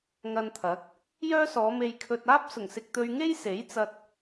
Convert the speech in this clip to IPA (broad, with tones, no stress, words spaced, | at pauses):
ŋɐ˧nt̪ʰɐ˨˥k̚ | jœː˥sɔː˨˧ me˥jkʰɵ˥t̚ aː˥p̚sʊ˨˩ŋsɪ˨k̚ t̪ɵ˧ɥŋe˥jse˨˥j t͡sɐ˧t̚